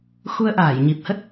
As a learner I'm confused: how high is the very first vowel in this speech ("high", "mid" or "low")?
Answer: high